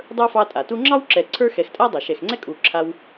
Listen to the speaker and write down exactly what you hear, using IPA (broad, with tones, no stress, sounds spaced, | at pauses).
dˤ ə˞˥ f ɑ˦ tʼ a˩ t u˥ ŋ͡ǁ ɑ˥ w ǁ ɛ˨ ǀʰ ə˞˥ x ɛ˨ x tʼ a˥ dˤ a˩ ʃ ɛ˨ x ŋ͡ǀ ɛ˥ kʼ u˨ ǁʰ a˦ w